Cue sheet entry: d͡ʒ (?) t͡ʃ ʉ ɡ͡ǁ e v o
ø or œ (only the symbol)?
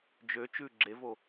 ø